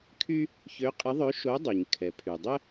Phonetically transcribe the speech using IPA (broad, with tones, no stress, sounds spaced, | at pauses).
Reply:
kʰ y˥ | ç ø˧˥ qʼ ɪ˧˥ ðˤ ø˧˥ ʃ o˧˥ dˤ y˩ ɲ kʰ ɛ˩ pʰ y˩ dˤ ɪ˥